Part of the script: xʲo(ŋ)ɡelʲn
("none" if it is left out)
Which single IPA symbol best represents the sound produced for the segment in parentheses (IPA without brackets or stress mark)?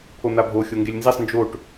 ŋ